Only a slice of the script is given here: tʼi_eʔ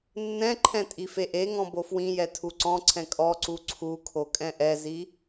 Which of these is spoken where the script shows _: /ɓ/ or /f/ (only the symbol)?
f